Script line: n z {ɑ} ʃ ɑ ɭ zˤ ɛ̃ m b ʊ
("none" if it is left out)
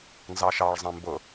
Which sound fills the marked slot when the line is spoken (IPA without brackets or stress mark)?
ɑ